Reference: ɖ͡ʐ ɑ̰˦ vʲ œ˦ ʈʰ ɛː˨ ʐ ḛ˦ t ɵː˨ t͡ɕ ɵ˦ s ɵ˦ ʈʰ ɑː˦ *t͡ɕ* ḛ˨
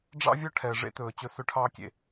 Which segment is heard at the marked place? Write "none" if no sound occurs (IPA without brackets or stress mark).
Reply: kʲ